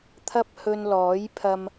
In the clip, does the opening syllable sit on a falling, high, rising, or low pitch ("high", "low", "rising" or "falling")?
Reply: high